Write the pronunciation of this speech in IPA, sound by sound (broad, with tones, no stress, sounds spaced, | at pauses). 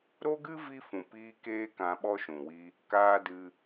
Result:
ɾ o˦ ɡ ɨ˦ v i˦ f ũ˨ p iː˦ k eː˦ k ã˧ ɓ ɔ˦ ʃ ũ˨ w i˦ | k aː˦ d ɨ˦